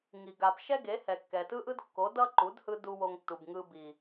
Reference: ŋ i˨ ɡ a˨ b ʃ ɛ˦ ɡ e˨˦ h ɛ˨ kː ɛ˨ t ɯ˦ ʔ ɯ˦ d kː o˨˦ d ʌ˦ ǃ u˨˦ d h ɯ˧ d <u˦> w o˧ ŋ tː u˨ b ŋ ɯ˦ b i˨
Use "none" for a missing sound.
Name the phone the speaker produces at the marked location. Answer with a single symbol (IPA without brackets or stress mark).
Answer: u˦